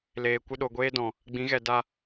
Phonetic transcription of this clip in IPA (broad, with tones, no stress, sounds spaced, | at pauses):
l eː˨ kʷ ɨ˧ ɗ o˨ ɡʷ eː˦ d ɔ̃˨ | ɡ͡b ĩ˨˦ ɣ ɛ˨ d a˧